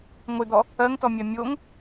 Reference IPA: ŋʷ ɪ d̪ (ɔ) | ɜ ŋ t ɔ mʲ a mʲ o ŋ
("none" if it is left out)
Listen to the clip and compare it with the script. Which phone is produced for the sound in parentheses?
ɔ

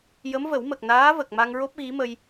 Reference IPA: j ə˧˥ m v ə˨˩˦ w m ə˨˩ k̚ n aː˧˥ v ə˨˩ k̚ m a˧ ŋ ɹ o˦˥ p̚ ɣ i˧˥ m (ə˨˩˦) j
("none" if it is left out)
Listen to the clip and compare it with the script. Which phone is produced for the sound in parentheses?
ə˧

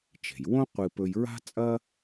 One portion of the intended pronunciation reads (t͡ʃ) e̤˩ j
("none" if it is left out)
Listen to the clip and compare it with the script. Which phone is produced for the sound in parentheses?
t͡ʃ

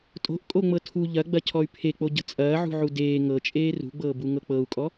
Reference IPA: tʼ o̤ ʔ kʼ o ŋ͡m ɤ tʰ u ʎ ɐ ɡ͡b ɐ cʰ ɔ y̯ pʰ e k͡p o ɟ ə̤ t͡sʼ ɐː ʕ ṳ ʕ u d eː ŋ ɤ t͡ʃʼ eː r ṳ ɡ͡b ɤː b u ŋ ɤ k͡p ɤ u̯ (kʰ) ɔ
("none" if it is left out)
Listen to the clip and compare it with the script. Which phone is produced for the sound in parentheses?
kʼ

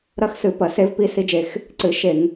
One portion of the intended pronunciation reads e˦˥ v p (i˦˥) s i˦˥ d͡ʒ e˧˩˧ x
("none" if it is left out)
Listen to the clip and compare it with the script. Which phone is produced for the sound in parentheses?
i˦˥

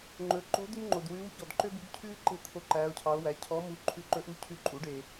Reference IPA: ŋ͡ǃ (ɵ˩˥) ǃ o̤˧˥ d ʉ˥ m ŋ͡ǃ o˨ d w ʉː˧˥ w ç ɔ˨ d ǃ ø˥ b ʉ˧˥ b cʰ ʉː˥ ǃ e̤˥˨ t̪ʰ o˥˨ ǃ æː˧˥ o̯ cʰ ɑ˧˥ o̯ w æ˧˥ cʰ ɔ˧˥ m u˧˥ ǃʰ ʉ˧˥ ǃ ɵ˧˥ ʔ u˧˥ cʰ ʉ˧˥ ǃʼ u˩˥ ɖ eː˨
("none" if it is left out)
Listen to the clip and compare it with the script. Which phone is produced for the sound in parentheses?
ɵ˩˥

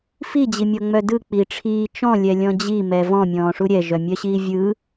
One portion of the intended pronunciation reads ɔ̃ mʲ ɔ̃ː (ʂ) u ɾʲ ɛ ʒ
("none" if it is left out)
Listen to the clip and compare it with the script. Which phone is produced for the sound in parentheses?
ʂ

